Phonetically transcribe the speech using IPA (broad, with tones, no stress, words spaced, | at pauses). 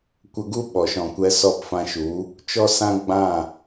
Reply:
kʷə˧ɡu˦ ɓɔ˨ʃɔ̃˨kʷɛ˧ sɔ˦˨pfã˧ʃu˨˦ | t͡ʃɔ˦sã˦ ɡ͡bã˦˨